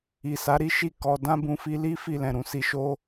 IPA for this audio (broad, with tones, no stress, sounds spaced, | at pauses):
i˨ s a˨˦ ɾ i˦ ʃ i˦˨ k ɔ˧ d ã˦ b ũ˧ f i˧ l i˦ f i˦˨ l ɛ̃˨ ɾ ũ˧ s i˧ ʃ o˦